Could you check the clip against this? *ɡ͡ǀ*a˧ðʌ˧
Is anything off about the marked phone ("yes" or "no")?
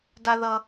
yes